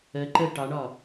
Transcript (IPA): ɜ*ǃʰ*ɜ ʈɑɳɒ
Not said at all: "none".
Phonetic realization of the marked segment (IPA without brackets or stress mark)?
ǃ